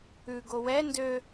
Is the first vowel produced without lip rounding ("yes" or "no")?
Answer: no